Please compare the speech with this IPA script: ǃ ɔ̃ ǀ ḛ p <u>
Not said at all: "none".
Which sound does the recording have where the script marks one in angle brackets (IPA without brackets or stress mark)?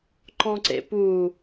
u